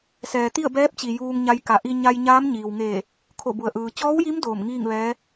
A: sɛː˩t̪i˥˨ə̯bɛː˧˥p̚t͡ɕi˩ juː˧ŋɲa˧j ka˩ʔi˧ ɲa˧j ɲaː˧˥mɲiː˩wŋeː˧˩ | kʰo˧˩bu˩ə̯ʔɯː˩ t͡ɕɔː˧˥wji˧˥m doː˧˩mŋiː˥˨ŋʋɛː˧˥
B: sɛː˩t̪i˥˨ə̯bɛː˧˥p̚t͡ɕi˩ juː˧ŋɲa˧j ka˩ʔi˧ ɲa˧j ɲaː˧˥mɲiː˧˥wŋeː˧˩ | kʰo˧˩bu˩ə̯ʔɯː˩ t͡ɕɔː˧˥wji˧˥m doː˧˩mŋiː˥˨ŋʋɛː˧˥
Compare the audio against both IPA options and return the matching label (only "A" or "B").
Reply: A